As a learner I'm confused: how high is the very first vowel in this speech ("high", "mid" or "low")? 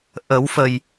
mid